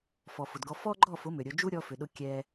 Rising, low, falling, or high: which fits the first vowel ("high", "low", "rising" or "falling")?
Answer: low